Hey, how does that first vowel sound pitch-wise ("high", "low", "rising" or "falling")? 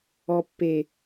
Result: low